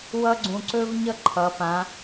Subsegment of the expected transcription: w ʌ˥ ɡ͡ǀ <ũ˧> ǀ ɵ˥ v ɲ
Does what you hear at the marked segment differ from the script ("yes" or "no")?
no